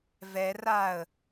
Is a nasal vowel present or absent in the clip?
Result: absent